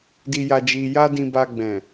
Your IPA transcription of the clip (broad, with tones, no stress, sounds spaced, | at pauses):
d i˧ j a˧ d͡ʒ i˧ j a˦ d ĩ˧ b a˧ ɡ͡b ɛ̃˨